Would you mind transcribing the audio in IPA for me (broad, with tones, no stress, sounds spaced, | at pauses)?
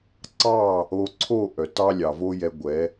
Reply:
ǀ ɑ˦˨ | o˧ ǀʰ o˦˨ ʔ œ˨ t ɑ˦ lʲ ɑ˨ v o˦ j ɛ˧ ɡʷ ɛ˨˦